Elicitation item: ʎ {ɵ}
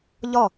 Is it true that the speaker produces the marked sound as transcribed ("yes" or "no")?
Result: no